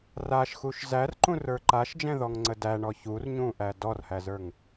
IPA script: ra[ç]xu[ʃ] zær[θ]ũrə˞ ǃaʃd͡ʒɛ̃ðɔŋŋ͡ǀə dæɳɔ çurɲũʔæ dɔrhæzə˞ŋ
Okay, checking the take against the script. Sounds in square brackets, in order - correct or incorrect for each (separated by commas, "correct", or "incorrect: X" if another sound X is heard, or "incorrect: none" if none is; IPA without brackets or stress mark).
incorrect: ʃ, correct, incorrect: ǃ